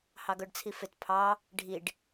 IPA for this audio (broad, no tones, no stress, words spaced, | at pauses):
hɑɡœɖt͡sʰifɪt pʰɑ | ɖʱiɖ